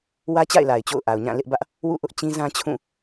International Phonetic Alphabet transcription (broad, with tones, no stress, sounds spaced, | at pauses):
w ä˦ t͡ɕ a̰˦˨ ɪ̯ l a˨ ɪ̯ t͡ɕ o̰˦˨ ʊ̯ ʔ a˨ ʊ̯ ɲ ã˦˨ l ɪ˦ ʔ b ä˦ ʔ | w ṵ˦˨ ʔ ʊ˦ ʔ t͡ɕ ĩ˦ z ã˦ t͡ɕʰ ũ˦˨